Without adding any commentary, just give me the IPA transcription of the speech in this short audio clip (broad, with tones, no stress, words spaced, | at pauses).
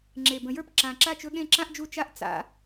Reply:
ŋ͡ǁe˨˩bə̃˨˩˦jə˞˥˨p ǁã˨˩ǁa˥˨t͡ʃɵ˧˥ɠẽ˥˨ ǁã˥ʔd͡ʒu˥˨ t͡ʃa˥ʔ t͡sa̰˨˩˦